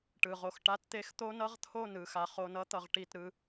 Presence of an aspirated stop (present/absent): present